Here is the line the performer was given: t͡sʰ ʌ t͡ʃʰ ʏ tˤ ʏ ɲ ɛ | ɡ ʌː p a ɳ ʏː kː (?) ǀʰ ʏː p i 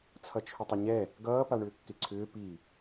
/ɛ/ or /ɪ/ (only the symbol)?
ɪ